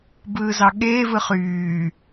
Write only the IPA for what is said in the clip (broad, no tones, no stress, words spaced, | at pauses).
bɯːzɑɠeː vɯχyː